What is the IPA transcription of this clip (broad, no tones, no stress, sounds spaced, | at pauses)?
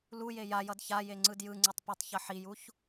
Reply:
l u j e j a j ʌ d ç a j e ŋ͡ǀ ɯ d j ɯ ŋ͡ǀ ɯ tˤ p u tˤ ç ʌ ħ i j u ç